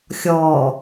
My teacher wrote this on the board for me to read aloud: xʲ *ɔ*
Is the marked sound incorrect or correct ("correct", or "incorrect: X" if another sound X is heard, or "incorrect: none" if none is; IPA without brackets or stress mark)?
correct